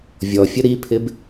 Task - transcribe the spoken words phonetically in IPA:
vʲ ɔ fʲ ə ɾ i pʰ ɪ b

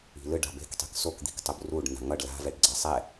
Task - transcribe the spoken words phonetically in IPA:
i̤ l ɯ ɖ a̤ b e̤ k tˤ i̤ k s o k d̪ i̤ k tˤ u b r u ɖ n a̤ ŋ ʌ ɖ l a̤ v ɛ ɖ ɡ͡ǀ a sˤ ɛ

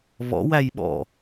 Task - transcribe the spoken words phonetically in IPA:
β ɔ̰ w æ j ɓ ɔ̰

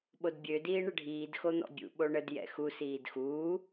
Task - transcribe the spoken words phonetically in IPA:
ɓ o d bʲ ø d iː ɳ ə ɖʱ iː d x o n̪ ɔ̰ bʲ ṵ ɓ o ɳ ə d j ɛ̰ x u s iː d x uː

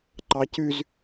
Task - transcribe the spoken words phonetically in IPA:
ǃ ɑ c ʉ z

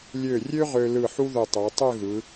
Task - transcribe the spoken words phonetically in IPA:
lʲ ø˧˩ rʲ ø˥ ʁ ø˧ l ɯ˧˩ ħ u˥ ð ø˧˩ tˤ æ˩˧ tˤ ø˥˧ ɣ ɯ˩˧

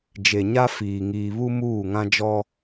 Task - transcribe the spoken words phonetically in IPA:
d͡ʒ e˨ ɲ a˦ f iː˨ ŋ iː˨ β u˦ m uː˦˨ ŋ ã˦ d͡ʒ ɔ˦

